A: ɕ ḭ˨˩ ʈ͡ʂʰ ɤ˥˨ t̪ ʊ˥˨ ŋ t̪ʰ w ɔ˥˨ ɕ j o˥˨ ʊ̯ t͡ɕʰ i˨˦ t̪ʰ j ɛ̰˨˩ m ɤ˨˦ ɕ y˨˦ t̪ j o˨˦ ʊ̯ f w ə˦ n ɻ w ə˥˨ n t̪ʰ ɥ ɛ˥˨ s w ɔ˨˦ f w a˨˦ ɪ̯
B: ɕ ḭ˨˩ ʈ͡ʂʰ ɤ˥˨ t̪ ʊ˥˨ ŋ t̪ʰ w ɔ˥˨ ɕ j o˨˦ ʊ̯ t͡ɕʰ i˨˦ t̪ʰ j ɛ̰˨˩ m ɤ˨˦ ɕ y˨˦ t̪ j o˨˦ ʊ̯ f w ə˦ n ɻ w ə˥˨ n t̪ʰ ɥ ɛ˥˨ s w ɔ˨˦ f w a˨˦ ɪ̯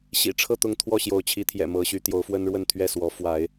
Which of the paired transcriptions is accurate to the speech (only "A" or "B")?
B